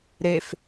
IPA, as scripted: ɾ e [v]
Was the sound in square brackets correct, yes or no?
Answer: no